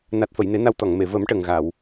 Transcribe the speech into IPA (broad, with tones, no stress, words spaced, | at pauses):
na˨˩t̚fə˨˩˨jne˨˩˦ na˧wt̪ɔ˨˩˨ŋme˨˩˨ və˨˩˦m ʈə˨˩ŋɣa˨˩˨w